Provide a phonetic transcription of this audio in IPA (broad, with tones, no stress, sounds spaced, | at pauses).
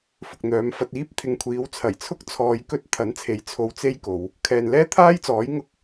f ʊ˨ k̚ n̪ œː˨˧ m f ɐ˧ t̚ iː˧ p̚ t̪ʰ ɪ˨ ŋ kʷʰ iː˨˧ w t͡sʰ ɐ˨˩ j t͡sʰ ʊ˥ k̚ t͡sʰ ɔː˧ j k ɵ˥ t̚ t̪ʰ ɐ˨˥ n t͡sʰ e˨˥ j t͡sʰ o˧ w t͡s e˥ j k o˨˧ w | kʰ ɛː˨ n l ɛː˥ t̪ʰ aː˥ j t͡s ɔː˨˥ j ŋ ʊ˥ k̚